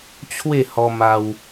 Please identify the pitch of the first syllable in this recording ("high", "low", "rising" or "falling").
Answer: falling